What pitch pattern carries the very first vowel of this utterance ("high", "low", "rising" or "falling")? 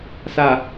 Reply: low